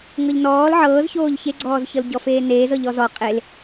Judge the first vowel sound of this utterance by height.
mid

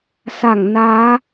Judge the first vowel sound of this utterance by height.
low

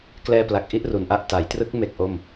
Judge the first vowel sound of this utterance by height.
mid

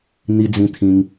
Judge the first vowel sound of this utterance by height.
high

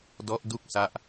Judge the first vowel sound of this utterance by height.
mid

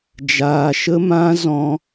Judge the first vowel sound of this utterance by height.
low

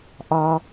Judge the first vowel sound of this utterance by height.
low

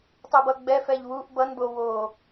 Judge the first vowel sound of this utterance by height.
mid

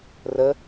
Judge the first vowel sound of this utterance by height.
mid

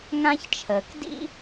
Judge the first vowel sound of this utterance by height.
low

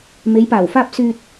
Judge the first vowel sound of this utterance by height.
mid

